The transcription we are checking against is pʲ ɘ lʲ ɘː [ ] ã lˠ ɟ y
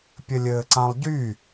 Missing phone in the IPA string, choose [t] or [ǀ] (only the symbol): ǀ